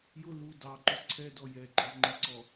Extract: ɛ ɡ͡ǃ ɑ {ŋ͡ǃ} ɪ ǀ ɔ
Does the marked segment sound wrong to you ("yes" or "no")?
no